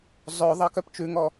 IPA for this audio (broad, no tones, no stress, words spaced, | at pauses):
zˤœ ðˤɑkœpt͡ʃʉŋɔ